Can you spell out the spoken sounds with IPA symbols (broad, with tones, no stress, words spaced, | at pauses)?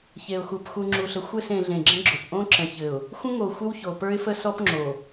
çe˨ʊ̯xu˨p xu˨ŋ͡ǁu˨ɬə˨ xʷɘ˦˨s ẽ˨ɮẽ˨ ɡ͡ǁə̃˦ɡ͡ǁo˨p ʔõ˦ǁə̃˨çɘ˨ʊ̯ | xʷə̃˦ŋo˨ xʷə˦wço˨pə˞˦ɪ̯fə˦ sɔ˦pŋ͡ǁo˨